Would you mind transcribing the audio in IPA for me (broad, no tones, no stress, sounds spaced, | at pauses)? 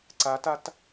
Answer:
ǀ a t a t